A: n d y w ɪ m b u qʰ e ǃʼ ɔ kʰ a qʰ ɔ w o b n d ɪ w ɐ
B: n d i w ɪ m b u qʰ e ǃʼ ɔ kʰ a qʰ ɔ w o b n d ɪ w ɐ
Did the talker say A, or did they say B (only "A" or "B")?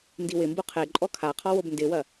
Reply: B